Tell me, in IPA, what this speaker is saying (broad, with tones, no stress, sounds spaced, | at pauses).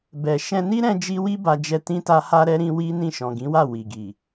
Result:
b ɛ˨ ʃ ɛ̃˧ n i˦ ɾ ɛ̃˦ d͡ʒ i˦ w i˦ b a˧ d͡ʒ ɛ˧ t ĩ˦ t a˦ h a˦ ɾ ɛ˦ ɾ ĩ˦ w i˦ n ĩ˦˨ ʃ ɔ̃˨ ɡ ĩ˨˦ w a˦˨ w i˨ ɡ i˨